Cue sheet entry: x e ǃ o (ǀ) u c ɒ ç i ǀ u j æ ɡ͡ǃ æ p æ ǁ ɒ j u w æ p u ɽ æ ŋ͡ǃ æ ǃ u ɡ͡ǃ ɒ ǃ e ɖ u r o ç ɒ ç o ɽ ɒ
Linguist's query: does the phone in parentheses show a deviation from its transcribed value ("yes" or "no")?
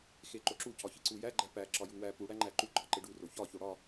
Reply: yes